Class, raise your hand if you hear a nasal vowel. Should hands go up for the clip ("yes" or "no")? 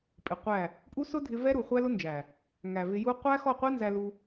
no